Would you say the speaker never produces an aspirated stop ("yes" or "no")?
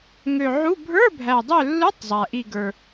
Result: yes